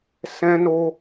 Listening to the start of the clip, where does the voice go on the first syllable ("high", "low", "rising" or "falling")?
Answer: high